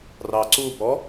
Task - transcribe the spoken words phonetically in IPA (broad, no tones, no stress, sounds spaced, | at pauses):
r ɑ ǀ u b ɔ